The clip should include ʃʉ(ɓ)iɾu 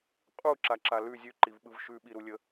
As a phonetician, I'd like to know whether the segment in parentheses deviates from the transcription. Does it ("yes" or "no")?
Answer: no